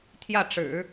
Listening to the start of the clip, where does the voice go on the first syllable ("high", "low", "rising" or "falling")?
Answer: falling